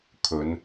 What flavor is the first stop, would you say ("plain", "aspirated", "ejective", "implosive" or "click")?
aspirated